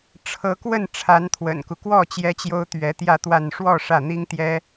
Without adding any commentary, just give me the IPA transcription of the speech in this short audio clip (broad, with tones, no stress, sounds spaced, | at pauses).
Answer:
ʈ͡ʂʰ ɤ˧˥ k w ə˥˩ n ʈ͡ʂʰ a˧˥ n t̪ʰ w ə̰˨˩ n k u˦ k w ɔ˥˩ t͡ɕ j ɛ˥ t͡ɕ j o˥ ʊ̯ t̪ ɥ ɛ˧˥ t̪ j ä˥˧ t̪ w a˥˧ n ʂ w ɔ˥˧ ʂ ä˥˩ n̪ i˥ ŋ t̪ j ɛ˥